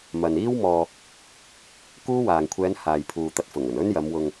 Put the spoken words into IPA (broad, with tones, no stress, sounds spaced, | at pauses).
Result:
m ɐ˨ n iː˥ w m ɔː˧ | k uː˥ w aː˨ ŋ kʷʰ ɛː˨˧ n h aː˨ j pʰ uː˨ t̪ ɐ˧ t̚ f ʊ˨˩ ŋ ɵ˨˩ n ɵ˥ n j ɐ˨˧ m w ʊ˧ ŋ